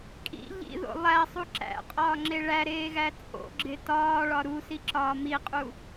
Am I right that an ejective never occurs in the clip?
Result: no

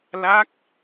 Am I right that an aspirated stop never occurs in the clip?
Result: yes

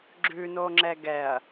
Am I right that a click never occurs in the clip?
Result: no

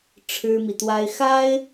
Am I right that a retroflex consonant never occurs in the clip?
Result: no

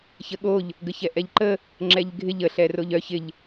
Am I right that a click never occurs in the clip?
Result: no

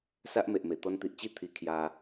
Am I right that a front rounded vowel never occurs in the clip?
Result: yes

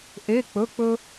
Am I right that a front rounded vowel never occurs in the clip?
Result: yes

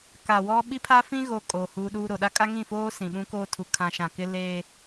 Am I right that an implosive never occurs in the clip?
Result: no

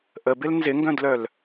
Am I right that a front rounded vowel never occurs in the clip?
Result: no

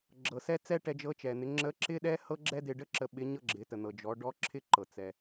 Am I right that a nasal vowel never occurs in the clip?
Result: yes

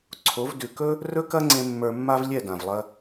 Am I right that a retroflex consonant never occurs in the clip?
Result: yes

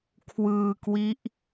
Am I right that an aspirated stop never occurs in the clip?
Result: no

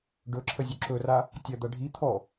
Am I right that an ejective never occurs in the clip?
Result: yes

